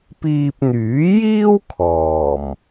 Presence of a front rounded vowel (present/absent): present